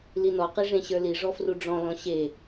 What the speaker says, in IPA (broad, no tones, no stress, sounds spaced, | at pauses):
l i n ɔ q i ʐ ẽ ɕ ə˞ l i ʐ ɔ f r u ɖ͡ʐ ɔ̃ l ɔ̃ ɕ e